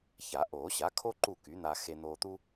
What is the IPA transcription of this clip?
ça˨˩˦ʔoː˨˩˦ɕa˩˥kʰo˥ ǃu˥˨ky˩˥n̪a˧xe˧ n̪oː˧t̪u˥

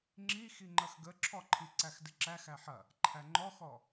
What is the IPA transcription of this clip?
ŋ͡ǁi xiŋ͡ǃɐxɡəǁʰɔ ǃʰiǀæxdɪǁæx æħɐ | ǃʰæŋ͡ǃɔxɔ

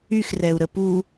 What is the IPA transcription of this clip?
yxrɛu̯ɾə pu

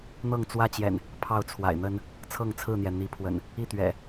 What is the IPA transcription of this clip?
n̪ɤ˥˨ŋt͡swä˦t͡ɕjɛ̰˨˩n | pʰɑ˥˨ʊ̯t͡sʰwa̰˨˩ɪ̯n̪ə˦n | t͡sʰɤ˥˨ŋt͡sʰɹ̩˥˨n̪jɛ˩ n̪i˨˦pʰwə̰˨˩n | i˥˨t̪ɥɛ̰˨˩

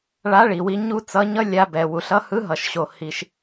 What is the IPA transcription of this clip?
ɭa˧˥ɭi˩wi˧ ɲu˥t͡sʌ˧˥ɲʌ˥ lʲa˧bɛ˩wu˩ɬ ʌ˧˥hɯ˧˥ɦʌ˩ʃɕo˩ hi˩ʃ

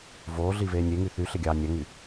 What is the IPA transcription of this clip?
voː ɮiveːnʲeŋy θy ɬeɡʲɑːnʲæŋy

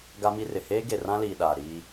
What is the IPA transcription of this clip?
ɡa˦mi˦rɪ˨ heː˦ɡe˨rã˦liː˨ ɗaː˨ɾiː˦

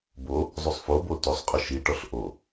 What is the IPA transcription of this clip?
bo | zˤusˤfobo tosˤqʼɔ ʃiʈɔɬ ʔo

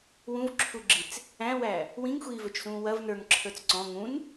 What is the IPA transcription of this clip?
wũvǁʰuɡ͡ǁit͡s | æ̃wæ | wĩŋxʷiːvɵt͡ʃsũː wɐv nə˞ŋǁʰə˞t͡s ǀɔ̃ ŋũn

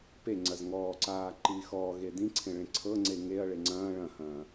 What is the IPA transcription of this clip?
peŋ͡ǀɐz ŋɔːǀaː ǃiːxɔːɣe dĩǀʰẽ ɭẽǀʰɤŋ͡ǀe ŋeɐ̯ɭe ŋ͡ǀɐ̃ː ɭɐ̃hɐ̃ː

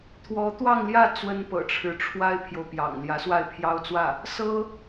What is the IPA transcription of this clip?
t̪ʰwɔ˧˥t̪wɑ˥˧ŋljä˥˩ t͡swə˥npɤ̰˨˩ʈ͡ʂʰɻ̩˧˥ ʈ͡ʂʰwa˥ɪ̯pʰjo˨ʊ̯pjɑ̰˨˩ŋ ljä˧˥swa˥˩ɪ̯pʰjɑ˥ʊ̯t͡swä˥˩ | sɤ˥

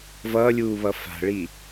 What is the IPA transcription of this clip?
vʌːlʲuːβʌ fa̤ɭi

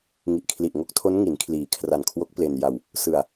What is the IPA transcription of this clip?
ŋi˨˩ʔkʰli˨˩ʔ ŋo˦˥k̚tʰo˦˥n ŋi˩˦nkʰliː˩˦kʰra˨˩n kʰwo˦˥k̚ple˧nja˧w | sɯ˧a̯

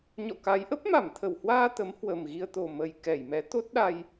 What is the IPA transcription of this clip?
ɲɔ̰˧˨ka˨˦j ʔə˦˥p̚ma˧˩mt̪ʰə˧˩whwaː˧ t̪ə˨˦m hwə˨˩mɣi˧ə̯t̪o˨˩ mə˨˩jkɛ˧˩jmɛ˨˦ t̪o˦˥t̚ɗa˧j

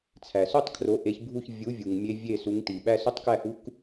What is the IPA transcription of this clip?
t͡sʰæ˩so˥˨tˤ kʰro˩˥ʔe˩˥çbʱu˥˨ç vʲu˩˥ vʲu˩ŋ mʲe˧˥vʲe˥˨su˩˥ŋ ti˩ɓæ˥ so˥tˤkæ˥˨hu˧˥k

